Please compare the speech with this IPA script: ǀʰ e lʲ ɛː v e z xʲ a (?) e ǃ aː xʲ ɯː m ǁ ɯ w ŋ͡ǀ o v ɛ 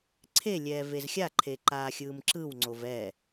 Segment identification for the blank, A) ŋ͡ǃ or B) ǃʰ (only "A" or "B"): B